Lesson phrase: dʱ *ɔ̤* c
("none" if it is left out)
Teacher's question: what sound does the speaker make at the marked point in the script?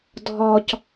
ɔ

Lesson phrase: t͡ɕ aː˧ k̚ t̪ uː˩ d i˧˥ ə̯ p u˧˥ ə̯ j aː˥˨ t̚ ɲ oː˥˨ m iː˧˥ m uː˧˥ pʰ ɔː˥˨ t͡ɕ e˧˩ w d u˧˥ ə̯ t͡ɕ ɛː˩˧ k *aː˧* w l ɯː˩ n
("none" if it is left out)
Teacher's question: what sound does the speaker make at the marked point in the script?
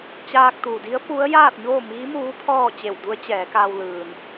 aː˧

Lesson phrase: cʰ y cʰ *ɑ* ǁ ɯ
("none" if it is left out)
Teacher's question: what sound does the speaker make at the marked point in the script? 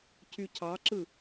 ɑ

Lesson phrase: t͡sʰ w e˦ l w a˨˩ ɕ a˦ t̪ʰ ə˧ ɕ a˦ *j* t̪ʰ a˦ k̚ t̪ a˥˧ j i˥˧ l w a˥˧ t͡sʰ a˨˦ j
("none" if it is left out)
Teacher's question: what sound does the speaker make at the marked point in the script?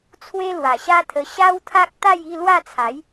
w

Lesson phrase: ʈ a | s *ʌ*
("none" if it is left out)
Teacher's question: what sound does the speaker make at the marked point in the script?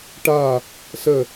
ə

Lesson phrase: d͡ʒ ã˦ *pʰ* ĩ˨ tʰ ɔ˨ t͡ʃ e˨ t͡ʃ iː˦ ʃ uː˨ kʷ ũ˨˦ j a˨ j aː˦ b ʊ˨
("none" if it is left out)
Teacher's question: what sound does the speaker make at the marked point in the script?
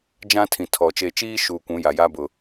tʰ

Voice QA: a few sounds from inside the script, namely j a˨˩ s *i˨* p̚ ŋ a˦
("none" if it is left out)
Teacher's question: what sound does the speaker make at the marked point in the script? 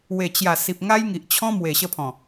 i˨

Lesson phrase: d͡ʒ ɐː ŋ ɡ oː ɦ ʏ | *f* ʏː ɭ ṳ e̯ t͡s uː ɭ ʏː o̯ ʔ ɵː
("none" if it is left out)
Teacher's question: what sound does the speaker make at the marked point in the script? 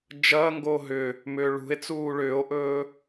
m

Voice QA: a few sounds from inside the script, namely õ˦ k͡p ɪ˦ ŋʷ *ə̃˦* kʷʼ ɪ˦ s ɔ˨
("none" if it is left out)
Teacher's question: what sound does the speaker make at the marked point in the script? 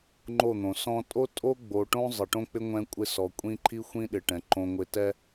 ɛ̃˦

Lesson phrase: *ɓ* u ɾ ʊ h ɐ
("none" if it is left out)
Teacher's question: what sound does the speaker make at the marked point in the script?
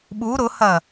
ɓ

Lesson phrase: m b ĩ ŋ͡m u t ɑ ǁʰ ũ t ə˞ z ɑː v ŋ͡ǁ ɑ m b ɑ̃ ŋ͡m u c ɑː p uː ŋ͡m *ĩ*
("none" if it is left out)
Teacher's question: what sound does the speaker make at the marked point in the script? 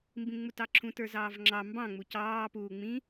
ĩ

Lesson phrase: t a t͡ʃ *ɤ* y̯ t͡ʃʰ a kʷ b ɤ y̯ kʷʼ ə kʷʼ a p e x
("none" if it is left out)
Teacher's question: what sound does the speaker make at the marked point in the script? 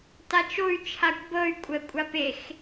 o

